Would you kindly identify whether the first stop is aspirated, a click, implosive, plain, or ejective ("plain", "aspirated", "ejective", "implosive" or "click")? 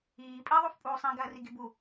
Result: ejective